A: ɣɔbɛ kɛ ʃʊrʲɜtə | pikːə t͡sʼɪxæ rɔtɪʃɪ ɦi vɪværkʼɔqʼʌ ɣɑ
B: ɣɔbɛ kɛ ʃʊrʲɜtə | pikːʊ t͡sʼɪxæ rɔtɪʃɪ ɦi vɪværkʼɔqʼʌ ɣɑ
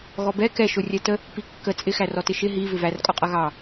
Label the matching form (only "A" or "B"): A